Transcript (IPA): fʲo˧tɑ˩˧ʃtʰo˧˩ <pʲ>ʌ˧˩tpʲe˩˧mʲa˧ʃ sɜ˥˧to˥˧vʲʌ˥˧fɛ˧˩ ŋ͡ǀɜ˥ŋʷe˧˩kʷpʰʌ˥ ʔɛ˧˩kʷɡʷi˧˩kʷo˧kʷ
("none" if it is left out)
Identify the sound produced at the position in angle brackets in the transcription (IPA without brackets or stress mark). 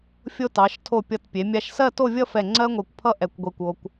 pʲ